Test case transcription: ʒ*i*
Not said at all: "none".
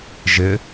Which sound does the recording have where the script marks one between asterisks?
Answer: ɪ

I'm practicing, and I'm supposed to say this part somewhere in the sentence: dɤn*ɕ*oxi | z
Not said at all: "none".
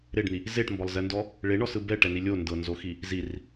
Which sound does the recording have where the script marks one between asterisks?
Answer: z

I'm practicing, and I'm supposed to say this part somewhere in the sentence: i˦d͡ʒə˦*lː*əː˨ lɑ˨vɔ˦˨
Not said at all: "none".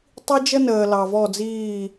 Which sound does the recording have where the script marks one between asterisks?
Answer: n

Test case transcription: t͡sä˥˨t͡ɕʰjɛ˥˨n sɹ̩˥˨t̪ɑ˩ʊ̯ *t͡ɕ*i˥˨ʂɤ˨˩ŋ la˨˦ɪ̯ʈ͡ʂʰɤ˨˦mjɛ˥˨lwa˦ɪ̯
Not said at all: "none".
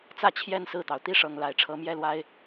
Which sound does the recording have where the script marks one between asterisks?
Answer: t̪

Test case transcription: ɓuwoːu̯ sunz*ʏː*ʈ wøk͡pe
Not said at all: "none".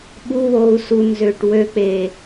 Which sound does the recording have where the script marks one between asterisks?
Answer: ʏː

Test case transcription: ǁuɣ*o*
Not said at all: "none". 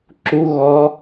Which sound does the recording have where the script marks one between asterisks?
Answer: ɔ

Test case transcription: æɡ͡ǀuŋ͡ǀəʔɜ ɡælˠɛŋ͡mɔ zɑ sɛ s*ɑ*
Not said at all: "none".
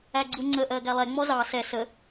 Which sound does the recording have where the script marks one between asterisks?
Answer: ə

